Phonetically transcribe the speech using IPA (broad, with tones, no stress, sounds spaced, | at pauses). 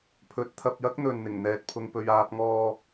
pʰ ɵ˨˥ t̚ t̪ʰ ɐ˧ p̚ j ɐ˥ k̚ n̪ ɵ˨ n n̪ ɪ˨˩ ŋ n̪ ɛː˧ t̚ pʰ ʊ˧ ŋ p ɵ˧ ɥ aː˧ p̚ ŋ ɔː˧